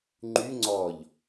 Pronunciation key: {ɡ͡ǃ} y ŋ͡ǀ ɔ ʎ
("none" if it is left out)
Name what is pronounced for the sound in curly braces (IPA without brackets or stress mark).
ŋ͡ǃ